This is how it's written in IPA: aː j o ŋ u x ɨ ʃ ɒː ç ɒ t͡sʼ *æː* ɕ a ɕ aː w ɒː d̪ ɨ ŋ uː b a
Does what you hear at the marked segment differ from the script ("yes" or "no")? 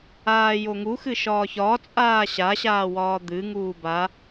yes